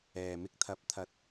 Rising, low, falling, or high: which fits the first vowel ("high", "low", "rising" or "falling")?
low